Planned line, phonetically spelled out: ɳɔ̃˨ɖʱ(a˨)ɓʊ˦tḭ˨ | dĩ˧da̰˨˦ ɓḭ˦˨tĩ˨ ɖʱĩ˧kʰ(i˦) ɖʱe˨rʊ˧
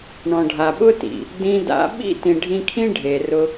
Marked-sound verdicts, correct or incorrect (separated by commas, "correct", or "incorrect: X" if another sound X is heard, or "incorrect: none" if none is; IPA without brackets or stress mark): correct, incorrect: ĩ˦